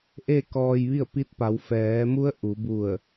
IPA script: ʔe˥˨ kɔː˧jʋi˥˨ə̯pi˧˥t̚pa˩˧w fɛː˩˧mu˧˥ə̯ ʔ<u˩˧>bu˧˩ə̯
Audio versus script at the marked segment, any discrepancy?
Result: no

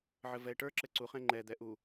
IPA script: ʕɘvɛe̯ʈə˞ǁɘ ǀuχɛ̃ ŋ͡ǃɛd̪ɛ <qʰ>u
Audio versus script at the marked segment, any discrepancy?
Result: yes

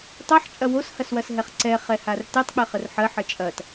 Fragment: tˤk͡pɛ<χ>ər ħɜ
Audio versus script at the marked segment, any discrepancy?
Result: no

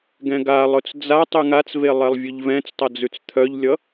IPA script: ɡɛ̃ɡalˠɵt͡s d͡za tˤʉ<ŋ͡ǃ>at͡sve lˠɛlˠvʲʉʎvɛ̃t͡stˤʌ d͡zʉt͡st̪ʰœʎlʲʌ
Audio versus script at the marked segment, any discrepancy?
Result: yes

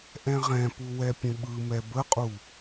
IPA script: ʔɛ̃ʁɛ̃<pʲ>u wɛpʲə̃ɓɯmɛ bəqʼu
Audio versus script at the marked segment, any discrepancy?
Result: yes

